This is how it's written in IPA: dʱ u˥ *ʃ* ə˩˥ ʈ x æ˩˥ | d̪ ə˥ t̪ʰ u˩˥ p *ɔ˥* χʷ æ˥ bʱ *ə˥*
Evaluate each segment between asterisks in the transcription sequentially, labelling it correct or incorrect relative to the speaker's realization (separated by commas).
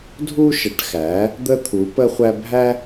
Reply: correct, incorrect, incorrect